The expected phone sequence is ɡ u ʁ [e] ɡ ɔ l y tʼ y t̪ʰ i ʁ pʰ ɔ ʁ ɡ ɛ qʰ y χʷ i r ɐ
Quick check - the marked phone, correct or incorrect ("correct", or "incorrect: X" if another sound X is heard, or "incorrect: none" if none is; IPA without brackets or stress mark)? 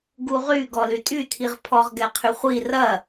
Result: incorrect: y